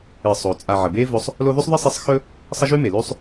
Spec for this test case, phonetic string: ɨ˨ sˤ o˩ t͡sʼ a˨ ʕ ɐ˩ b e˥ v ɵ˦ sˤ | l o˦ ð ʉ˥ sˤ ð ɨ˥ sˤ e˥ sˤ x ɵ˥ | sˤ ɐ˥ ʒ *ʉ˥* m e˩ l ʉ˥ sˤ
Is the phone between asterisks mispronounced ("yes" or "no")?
no